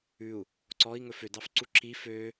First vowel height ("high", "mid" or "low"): high